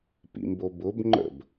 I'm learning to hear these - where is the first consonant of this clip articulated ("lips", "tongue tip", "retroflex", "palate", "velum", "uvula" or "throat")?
lips